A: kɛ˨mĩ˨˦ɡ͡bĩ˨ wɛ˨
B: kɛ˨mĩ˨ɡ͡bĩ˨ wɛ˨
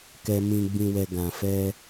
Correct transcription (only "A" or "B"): B